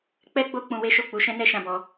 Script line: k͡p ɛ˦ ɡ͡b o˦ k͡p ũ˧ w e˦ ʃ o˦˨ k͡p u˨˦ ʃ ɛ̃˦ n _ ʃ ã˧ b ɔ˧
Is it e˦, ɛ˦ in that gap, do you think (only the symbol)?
ɛ˦